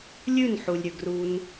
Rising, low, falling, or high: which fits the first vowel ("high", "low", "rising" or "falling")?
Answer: falling